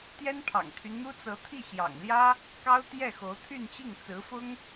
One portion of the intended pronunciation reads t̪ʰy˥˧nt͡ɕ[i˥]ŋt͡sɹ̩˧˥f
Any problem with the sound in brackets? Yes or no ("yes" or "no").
yes